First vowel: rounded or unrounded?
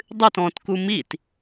unrounded